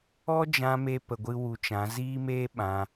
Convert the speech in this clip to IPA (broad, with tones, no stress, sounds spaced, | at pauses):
ɔ˦ d͡ʒ ã˧ m e˧ p ə˧ ɡʷ ɨ˦ w u˧ t͡ʃ ã˨˦ z iː˦ m eː˦ ɓ ã˧